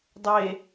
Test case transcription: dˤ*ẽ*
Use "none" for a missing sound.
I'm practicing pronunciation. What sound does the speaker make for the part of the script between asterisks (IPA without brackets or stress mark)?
e